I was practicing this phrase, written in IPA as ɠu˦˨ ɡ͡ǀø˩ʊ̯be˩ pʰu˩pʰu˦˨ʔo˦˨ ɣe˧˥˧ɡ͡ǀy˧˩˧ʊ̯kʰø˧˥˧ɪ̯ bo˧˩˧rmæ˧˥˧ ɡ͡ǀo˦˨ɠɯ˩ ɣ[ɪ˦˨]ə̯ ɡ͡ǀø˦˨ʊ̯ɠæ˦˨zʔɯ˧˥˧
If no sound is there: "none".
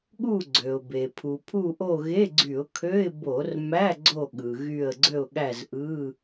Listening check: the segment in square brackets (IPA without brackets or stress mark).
y˦˨